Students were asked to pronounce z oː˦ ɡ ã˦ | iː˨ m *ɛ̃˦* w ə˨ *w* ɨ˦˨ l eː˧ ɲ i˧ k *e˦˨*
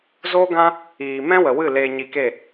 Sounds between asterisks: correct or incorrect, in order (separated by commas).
correct, correct, correct